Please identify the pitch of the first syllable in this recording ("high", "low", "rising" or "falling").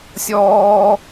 high